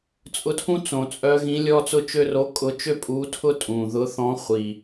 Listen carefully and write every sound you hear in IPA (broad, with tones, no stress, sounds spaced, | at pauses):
t͡sʼ ʊ˧˥ tʰ ũ˥ t͡s õ˨˩ t͡sʼ œ˧˥ ɣ ĩ˧˥ lʲ ɔ˥ t͡s ʊ˥ t͡ʃ ø˥ r o˧˥ kʼ ʊ˧˥ t͡ʃ ø˥ pʼ u˧˥ tʰ ʊ˥ tʼ ũ˨˩ ð ʊ˧˥ θ ɔ̃˧˥ χʷ i˨˩